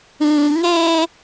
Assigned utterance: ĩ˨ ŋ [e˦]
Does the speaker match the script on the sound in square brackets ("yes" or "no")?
yes